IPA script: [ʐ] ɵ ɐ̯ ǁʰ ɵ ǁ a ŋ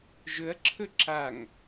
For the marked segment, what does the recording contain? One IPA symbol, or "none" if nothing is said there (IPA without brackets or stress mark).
ʒ